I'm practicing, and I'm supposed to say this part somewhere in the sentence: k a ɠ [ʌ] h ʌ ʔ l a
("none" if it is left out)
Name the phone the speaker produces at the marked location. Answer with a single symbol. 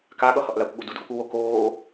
ʌ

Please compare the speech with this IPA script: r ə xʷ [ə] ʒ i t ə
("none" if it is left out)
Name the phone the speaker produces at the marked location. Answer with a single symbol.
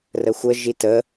ə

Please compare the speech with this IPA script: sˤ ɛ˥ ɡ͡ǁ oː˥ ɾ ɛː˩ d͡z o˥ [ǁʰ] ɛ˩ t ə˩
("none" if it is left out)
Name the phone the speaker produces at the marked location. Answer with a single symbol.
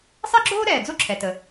ǁʰ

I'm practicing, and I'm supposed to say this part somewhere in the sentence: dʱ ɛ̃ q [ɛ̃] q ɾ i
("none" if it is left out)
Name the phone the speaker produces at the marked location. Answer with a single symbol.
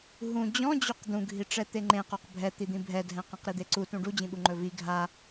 ɛ̃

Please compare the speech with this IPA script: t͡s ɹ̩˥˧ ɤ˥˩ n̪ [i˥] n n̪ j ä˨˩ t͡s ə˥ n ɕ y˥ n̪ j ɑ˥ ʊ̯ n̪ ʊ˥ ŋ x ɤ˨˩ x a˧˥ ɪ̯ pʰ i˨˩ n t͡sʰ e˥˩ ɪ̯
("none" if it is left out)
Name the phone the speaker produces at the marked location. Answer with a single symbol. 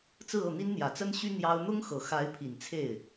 i˥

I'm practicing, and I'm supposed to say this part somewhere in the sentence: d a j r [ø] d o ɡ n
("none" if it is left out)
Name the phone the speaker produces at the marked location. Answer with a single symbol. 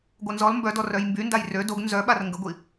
ø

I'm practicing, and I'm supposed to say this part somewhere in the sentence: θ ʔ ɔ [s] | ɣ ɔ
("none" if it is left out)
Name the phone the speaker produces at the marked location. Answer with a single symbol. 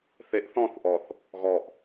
θ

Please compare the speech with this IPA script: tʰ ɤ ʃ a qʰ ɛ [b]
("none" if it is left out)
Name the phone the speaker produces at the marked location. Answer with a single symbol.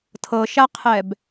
b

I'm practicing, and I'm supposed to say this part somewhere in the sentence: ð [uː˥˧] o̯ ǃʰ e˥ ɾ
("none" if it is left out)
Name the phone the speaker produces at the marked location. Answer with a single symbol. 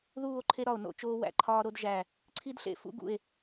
uː˥˧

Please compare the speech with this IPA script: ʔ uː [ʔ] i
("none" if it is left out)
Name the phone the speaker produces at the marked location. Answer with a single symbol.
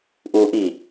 ʔ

